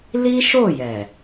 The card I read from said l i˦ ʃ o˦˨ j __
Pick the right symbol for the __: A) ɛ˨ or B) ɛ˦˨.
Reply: A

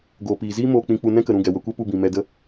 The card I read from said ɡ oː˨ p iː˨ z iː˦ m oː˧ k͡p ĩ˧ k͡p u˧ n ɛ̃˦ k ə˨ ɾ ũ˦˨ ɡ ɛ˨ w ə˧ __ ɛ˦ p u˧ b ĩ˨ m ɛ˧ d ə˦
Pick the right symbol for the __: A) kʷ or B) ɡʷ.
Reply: A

